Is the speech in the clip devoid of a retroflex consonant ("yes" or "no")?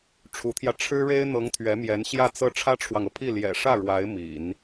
no